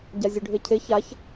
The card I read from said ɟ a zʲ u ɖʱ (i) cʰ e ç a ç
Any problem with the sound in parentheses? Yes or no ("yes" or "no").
yes